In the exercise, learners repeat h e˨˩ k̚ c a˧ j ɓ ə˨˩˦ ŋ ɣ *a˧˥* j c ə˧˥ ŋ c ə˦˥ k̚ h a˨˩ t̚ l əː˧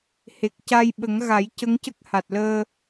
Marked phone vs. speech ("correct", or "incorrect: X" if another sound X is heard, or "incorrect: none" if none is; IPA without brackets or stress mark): incorrect: a˨˩˦